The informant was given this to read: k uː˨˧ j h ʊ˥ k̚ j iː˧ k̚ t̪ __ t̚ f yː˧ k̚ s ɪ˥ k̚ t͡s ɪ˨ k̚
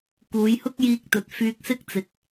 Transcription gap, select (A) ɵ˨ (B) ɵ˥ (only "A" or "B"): A